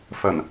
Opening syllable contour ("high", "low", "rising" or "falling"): low